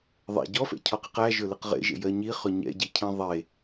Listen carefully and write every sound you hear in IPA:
ðˤ ɛ̰ ɟ ɔ f ɛ̰ cʰ ɔ q i q æ ʒ ɵ l ɪ q ʁ ḛ ʒ ḛ j ɜ ɲ i χ ɵ ɲ ɛ̰ ɟ i cʰ ĩ ðˤ e

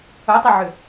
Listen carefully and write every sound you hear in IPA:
ʊ tˤ ɐ ʕ ʏ

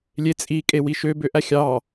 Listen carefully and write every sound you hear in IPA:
lʲ e t͡sʼ i kʼ e w i ʃ ø b ø ʔ æ xʲ ɑ

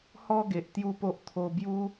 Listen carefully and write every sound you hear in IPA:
h ɔ˥˧ ɡ e˨ ʔ t̪ j u˦ p o˦ ʔ t̪ʰ o˧ b j u˦

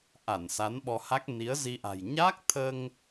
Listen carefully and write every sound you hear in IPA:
ʔ a˧˩ n s a˨˦ n ɓ ɔ˧ h a˦˥ k̚ n i˨˦ ə̯ z i˧ ʔ a̤˨˩ j ɲ aː˦˥ k̚ t̪ʰ əː˧ ŋ

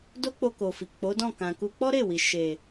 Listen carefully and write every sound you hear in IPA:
d o˦ k͡p o˧ k o˨ f i˨ k͡p o˨˦ d ɔ̃˦˨ k ã˨ k u˧ k͡p ɔ˦ ɾ e˦˨ w i˨ ʃ e˨

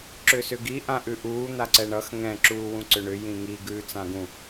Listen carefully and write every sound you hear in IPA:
ǁ ʏː s ʏ ɡ i ʔ ã ʔ ʉ ʔ uː n̪ a ǀ ɛ ɳ ʌ x ŋ ɛ̃ ǁ uː w ũ ǀ ʏ ɳ ʏ j ĩ ŋ i ɡ ʉː t͡s ã ɡ ũ

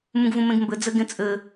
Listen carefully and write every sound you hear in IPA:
m ũ ɡ v ũ m ẽ ɡ m b ɘ d͡z ɘ ɡ ẽ t͡sʼ ɘ

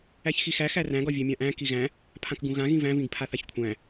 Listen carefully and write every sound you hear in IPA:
æ ç x i x æ x æ r æ̃ ɡ ɒ vʲ æ mʲ ã ʔ æ̃ k i ɣ æ̃ | pʰ ã k ɡ ũ ɣ ã ɣ ĩ v æ̃ v ĩ ɡ pʰ a θ a ç kʷʰ æ̃

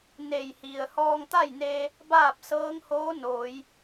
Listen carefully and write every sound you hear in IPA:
n e˧˩ j h i˩ ə̯ h ɔː˧ ŋ t̪ a˥˨ j n eː˧ | b aː˥˨ p̚ s ɤː˧˥ ŋ h oː˧˥ n oː˩˧ j

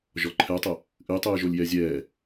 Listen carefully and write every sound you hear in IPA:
ʒ ɔ ǃʰ ɛ tˤ ə | ʔ ɨ j tˤ ɨː ʒ o lʲ j ɛ zʲ ɛː

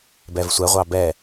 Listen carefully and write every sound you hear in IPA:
b ɛ v sʷ ɛ ʁʷ ɑ b ɛ

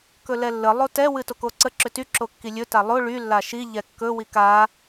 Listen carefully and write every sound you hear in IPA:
k ɵ l ɛ lː ə lˠ o t ɛ w ɨ t o k o ǀ ə ǁ ʏ t y ǁ o kː i lʲ ɵ t a lˠ o ɭ y lː a ʃ i ʎ ɛ kː ɵ w i k a

